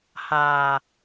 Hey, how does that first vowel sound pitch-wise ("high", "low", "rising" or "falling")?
low